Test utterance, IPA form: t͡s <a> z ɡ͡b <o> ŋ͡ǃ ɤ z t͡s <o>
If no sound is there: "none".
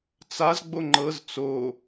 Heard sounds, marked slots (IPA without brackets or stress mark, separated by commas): a, o, o